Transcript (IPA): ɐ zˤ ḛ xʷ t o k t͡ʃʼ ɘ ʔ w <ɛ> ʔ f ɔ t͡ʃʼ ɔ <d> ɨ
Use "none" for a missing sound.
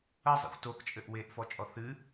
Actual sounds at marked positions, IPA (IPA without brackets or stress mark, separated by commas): e, θ